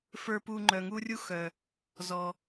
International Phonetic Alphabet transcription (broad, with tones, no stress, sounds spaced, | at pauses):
f ə˞˧ p u˧ ŋ͡ǃ œ˨ ŋ u˦ rʲ u˦ x œ˨ | z ɔ˨